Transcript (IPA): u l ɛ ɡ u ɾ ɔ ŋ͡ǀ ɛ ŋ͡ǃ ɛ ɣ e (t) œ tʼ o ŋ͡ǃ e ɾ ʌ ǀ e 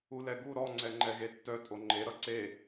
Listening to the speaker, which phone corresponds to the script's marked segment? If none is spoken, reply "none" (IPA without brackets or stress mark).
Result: tː